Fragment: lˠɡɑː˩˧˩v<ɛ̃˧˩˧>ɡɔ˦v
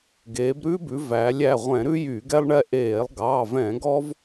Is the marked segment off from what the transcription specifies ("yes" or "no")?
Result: no